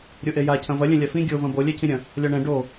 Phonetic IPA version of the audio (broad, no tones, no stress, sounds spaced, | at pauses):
ɾʲ o ʔ e j a cʰ ɐ̃ v ɐ lʲ ɛ̃ lʲ a f ĩ ɡʲ o v ɐ̃ b o lʲ ɛ cʰ ĩ ɾʲ ɐ̃ | lʲ ɔ ɳ ɛ̃ ɖ o